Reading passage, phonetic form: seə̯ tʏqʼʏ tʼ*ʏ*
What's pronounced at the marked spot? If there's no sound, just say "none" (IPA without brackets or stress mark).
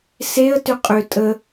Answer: ə